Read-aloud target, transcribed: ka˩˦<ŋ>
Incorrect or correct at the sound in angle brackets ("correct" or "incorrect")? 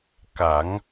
correct